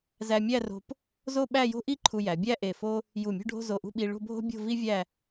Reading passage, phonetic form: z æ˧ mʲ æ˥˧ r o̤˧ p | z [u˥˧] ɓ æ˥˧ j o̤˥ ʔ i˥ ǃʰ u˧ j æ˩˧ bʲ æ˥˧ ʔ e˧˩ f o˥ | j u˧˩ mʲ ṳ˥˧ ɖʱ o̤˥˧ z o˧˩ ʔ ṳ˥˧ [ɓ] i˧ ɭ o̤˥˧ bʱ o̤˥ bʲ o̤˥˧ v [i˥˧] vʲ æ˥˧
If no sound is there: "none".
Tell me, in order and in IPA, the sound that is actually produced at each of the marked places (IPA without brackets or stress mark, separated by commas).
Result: o˥˧, ɓ, i˥